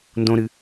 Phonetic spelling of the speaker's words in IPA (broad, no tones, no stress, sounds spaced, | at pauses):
n d õ ɾ ɨ